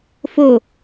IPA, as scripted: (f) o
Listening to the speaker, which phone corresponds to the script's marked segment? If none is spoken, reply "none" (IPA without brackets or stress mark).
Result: f